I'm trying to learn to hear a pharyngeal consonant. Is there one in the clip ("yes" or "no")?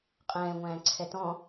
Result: no